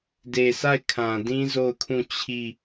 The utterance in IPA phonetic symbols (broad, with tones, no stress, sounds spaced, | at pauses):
d e˨ s a˦˨ ɪ̯ kʰ ã˨ d ĩ˦ z o˦˨ ʊ̯ kʰ ũ˦˨ t͡ɕʰ i˦˨